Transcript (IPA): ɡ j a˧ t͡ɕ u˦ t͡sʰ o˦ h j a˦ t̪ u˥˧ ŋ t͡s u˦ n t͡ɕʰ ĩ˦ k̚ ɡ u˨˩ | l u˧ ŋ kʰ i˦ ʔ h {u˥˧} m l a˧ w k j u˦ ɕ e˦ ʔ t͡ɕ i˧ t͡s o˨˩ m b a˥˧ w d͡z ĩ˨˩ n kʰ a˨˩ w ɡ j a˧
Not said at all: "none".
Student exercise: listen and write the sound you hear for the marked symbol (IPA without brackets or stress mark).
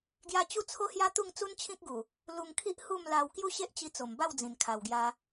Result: u˥˧